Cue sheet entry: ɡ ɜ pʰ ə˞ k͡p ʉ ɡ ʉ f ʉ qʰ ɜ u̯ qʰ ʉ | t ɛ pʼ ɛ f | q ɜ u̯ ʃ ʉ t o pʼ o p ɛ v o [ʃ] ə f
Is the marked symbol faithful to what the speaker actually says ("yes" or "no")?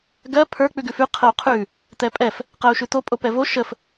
yes